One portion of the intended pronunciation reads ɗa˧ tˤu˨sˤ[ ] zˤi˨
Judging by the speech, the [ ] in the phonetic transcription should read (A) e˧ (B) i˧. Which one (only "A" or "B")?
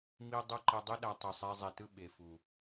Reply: A